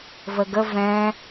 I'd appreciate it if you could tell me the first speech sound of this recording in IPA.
v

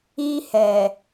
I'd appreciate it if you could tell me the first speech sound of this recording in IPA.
i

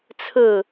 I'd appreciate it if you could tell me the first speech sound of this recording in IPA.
t͡sʰ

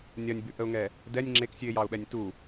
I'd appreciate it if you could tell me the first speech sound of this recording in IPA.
nʲ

